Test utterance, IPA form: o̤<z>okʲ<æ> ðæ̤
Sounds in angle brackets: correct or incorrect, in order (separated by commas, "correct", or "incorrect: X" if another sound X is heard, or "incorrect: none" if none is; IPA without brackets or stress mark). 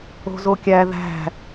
correct, correct